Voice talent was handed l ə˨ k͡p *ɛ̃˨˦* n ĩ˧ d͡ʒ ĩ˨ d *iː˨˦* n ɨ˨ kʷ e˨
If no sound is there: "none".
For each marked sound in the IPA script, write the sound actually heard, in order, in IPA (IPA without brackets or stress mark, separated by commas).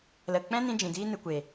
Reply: ɛ̃˦, iː˧